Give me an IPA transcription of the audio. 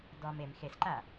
d ɔ m e m x e s ǃ a

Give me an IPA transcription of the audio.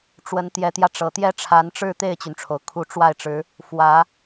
ʈ͡ʂ w ə˧˥ n t̪ j ɛ˧˥ t̪ j ä˧ ʈ͡ʂ ɤ˨˩ t̪ j ɛ˥ ʈ͡ʂʰ a˧˥ n ʈ͡ʂ ɻ̩˥˧ t̪ e˥˩ ɪ̯ t͡ɕ y˩ n ʈ͡ʂʰ o˩ ʊ̯ kʰ u˧˥ ʈ͡ʂ w a˥˩ ɪ̯ ʈ͡ʂ ɻ̩˧˥ | f w ä˧˥

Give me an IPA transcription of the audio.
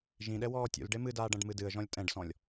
ʒ ĩ ɗ ɛ w ɔː tʲ ṵ l ɖ e m ɨ d aː ɖ ɐ̃ ɖ m ɨ d ɨ ə̯ ʒ ɔ̃ lʲ tʼ ɛ̃ ɖ s ɔ̃ lʲ

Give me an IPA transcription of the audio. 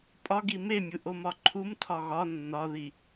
pʼ ɒ ɡ i m e mʲ u ʔ o m ɒ ǃʰ u m tʰ ɒ ɣ ɒ nː ɒ ð i

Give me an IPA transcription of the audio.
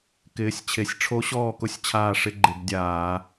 k ɪː˨˦ sʲ t͡ɕʰ e˨˦ sʲ ʈ͡ʂʰ o˦˥ ɕ ɔː˥˨ k ʊ˦˥ sʲ t͡ɕʰ aː˥˨ ʂ ɪ˦˥ ɡ͡ǃ ɪ˧˩˧ b dʲ aː˧˩˧

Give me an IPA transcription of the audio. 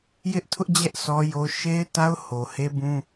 j ɪ˦ ʔ tʰ ʊ˦ ʔ d͡ʑ ɛ˦ ʔ sʰ ɔ˦ j o˦ ʃ e˦ ɪ̯ t a˦ ʊ̯ h o˨ h e˦ b ũ˦

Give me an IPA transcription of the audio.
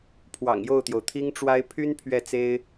pʰ w ɑ̰˨˩ ŋ j o˥˩ ʊ̯ t̪ j o˩ ʊ̯ t̪ʰ i˥ ŋ ʈ͡ʂ w a˥ ɪ̯ pʰ y˥ n pʰ ɥ ɛ˥˩ t͡s e˥ ɪ̯

